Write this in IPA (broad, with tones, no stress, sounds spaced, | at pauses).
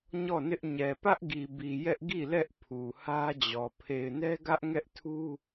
ɲ ɔ˦˨ n ɪ˦ ʔ ɲ ɛ˨ p ä˦ ʔ ɡ i˨ b i˨ j ɛ˦ ʔ ɡ i˦˨ l ɛ˦ ʔ pʰ u˨ h ä˦ d͡ʑ ɔ˨ pʰ e˨ ɪ̯ n ɛ˦ ɡ ä˦ ʔ ŋ ɛ˦ ʔ tʰ u˦